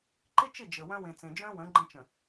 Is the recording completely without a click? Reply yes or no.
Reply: no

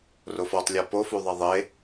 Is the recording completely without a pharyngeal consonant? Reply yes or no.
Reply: yes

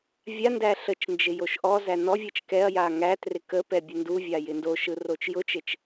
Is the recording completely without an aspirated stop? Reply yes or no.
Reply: yes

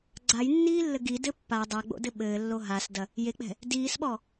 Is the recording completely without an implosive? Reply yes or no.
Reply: no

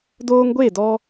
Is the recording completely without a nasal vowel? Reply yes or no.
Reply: yes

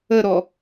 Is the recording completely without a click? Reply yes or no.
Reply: yes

